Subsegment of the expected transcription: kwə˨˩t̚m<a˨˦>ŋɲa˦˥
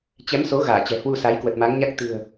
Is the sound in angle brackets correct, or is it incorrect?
correct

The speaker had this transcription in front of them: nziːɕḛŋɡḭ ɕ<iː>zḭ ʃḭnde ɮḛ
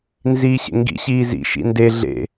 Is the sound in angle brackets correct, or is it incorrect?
correct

